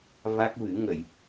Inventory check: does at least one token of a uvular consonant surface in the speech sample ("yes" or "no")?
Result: no